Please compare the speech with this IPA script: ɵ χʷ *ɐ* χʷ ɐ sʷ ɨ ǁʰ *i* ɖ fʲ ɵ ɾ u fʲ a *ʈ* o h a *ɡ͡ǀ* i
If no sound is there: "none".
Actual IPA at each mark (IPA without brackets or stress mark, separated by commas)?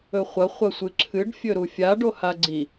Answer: ɐ, ɨ, ɖ, ɡ͡ǀ